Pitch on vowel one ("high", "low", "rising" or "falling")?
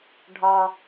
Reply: low